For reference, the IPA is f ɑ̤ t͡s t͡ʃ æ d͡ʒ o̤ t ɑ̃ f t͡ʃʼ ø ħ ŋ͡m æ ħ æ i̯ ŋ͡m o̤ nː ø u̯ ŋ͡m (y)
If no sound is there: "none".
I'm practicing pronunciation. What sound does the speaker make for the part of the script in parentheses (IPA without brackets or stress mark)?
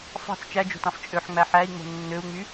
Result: y